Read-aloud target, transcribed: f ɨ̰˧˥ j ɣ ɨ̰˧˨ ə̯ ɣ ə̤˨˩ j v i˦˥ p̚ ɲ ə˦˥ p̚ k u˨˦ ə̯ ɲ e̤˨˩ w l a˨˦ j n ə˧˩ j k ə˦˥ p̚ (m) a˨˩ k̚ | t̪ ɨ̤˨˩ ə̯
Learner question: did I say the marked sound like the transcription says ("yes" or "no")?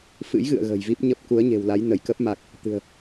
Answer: yes